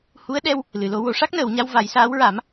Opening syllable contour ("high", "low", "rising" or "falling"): rising